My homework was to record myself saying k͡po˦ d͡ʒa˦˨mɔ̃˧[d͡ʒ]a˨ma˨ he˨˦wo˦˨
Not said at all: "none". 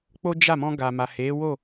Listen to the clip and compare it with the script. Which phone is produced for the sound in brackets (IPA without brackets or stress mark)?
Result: ɡ